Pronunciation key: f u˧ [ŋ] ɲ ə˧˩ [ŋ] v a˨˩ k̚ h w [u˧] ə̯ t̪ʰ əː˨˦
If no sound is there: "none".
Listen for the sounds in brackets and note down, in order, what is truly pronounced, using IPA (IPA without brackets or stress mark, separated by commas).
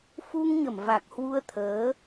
ŋ, m, u˧